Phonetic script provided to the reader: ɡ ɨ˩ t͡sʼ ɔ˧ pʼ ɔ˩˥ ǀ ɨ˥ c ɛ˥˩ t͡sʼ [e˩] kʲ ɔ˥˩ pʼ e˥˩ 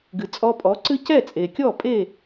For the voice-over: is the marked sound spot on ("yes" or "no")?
yes